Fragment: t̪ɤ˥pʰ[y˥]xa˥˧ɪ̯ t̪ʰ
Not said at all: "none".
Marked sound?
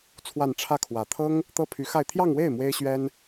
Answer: y˧˥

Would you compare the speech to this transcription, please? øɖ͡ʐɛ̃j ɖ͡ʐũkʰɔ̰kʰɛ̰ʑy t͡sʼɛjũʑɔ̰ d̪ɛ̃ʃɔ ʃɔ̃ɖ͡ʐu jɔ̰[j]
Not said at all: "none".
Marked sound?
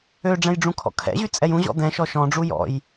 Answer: j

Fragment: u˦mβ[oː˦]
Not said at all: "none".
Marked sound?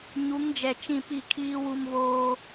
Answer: oː˦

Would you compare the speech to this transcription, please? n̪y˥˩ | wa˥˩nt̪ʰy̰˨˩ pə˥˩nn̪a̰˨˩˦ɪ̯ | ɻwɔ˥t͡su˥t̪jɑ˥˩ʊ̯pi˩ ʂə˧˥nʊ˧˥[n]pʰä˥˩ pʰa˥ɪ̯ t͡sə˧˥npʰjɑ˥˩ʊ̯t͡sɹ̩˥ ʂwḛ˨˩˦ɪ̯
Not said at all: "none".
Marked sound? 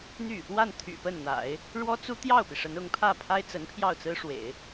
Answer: ŋ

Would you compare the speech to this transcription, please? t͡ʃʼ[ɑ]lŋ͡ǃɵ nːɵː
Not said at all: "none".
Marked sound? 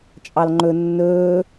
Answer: ɑ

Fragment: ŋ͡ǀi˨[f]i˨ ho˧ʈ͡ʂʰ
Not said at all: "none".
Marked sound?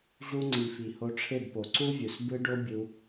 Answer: f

